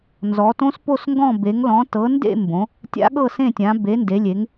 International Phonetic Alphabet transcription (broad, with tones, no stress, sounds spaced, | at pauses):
n z ɔ˨˦ t õ˦˥ s p o˥˧ s ŋ ɡ ɔ̃˥˧ b e˨˦ ŋ l ɔ̃˨˦ t ɤ˨˦ n d ḛ˥˧ m b õ˨˦ | tʲ a̰˦˥ ɠ ɤ˥˧ s ẽ˥˧ tʲ ã˨˦ b e˨˦ n d e˨˦ lʲ e˨˦ ŋ